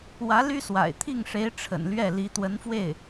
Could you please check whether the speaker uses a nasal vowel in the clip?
no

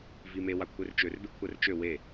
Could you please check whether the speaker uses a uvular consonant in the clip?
no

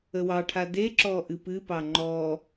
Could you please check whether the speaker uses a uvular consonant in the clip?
no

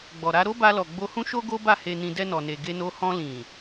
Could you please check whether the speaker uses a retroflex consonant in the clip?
no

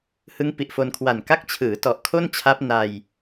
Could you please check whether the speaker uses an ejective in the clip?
no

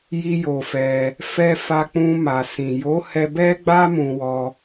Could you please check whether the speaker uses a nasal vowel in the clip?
yes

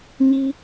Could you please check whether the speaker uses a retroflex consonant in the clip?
no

